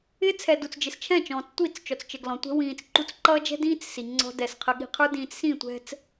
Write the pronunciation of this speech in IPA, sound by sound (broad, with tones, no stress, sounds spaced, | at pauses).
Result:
ɪ˦ t͡sʰ ɛ˨ d u˨ t͡s d͡ʒ ɪ˨ s t͡ʃʰ ɛ̃˦˨ t͡ʃ ɔ̃ː˨ t͡s tʷ i˦˨ t͡s t͡ʃ ɔ˨ t͡s t͡ʃ ə˨ ɡ l ɔ̃˨ tʷ ɛ̤˦ w ĩː˨ t͡s ǃ u˦ t͡s ǃ ʌː˦ d͡ʒ ɛ̤˦ d ĩː˦ t͡s s i˨ ŋ͡ǀ ɔ̤˦ d ɛ˨ s qʰ ə˨ ɠ i̤˨ qʰ ə˞˦ d ĩː˨ t͡s s ĩ˦˨ tʷ ɛ̤˦ t͡s